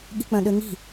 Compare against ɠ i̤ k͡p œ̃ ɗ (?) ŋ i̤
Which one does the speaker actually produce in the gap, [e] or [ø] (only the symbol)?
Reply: ø